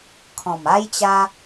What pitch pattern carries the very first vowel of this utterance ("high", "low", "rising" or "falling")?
low